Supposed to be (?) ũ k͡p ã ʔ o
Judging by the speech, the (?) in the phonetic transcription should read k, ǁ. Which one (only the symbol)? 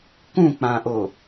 k